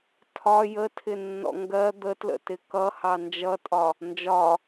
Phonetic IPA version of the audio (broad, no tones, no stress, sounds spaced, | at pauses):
tʰ ɒ j ə tʰ ɪ nː ɔ̰ ŋ ɡ ɜ d̪ ə t l ə̰ t ɪ k ʌ h ɑ n d͡ʒ ʌ tʼ ɒ | n d͡ʒ ɒ